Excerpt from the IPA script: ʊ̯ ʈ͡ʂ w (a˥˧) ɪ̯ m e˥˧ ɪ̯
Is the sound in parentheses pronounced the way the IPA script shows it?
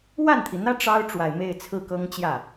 no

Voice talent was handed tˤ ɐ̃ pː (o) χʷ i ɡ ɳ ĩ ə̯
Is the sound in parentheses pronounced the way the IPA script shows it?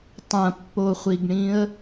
yes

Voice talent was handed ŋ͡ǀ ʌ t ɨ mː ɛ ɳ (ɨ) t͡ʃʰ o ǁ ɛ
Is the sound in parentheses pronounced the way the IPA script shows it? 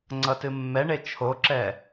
no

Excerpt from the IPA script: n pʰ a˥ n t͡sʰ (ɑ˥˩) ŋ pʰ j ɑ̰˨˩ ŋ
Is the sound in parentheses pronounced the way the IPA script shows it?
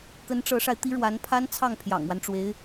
yes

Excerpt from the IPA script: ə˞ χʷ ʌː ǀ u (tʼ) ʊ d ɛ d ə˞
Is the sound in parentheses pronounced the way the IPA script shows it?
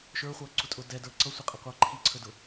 yes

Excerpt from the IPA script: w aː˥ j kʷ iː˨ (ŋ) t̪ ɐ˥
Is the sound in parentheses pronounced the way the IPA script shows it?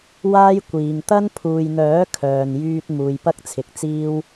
yes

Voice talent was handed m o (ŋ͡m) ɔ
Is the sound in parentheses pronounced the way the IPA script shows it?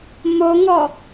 no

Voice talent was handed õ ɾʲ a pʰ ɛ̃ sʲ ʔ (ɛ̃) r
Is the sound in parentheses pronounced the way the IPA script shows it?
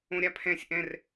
yes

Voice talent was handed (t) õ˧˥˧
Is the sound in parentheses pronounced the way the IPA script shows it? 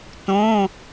yes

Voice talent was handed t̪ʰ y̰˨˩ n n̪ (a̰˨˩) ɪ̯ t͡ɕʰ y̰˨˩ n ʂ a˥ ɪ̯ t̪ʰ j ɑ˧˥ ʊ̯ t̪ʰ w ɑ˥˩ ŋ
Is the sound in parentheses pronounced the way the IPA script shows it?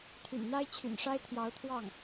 no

